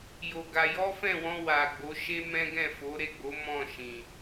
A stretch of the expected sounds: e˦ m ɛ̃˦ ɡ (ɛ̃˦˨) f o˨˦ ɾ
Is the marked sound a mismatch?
no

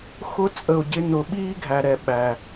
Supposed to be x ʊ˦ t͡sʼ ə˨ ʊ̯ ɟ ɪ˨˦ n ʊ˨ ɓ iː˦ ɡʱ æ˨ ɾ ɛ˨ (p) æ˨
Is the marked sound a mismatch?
yes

